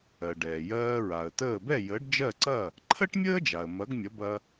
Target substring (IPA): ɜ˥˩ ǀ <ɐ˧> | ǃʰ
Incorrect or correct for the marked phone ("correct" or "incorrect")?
incorrect